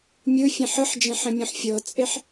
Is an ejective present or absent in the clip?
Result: present